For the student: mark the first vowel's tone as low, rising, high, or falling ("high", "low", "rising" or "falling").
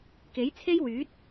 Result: rising